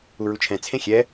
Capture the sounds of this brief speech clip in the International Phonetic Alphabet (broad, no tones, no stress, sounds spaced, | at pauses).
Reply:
u ɹ u t͡ʃʰ ɛ̃ t͡sʰ ẽ xʲ ɛ